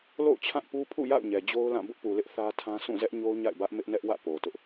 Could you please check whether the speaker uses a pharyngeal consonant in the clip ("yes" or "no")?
no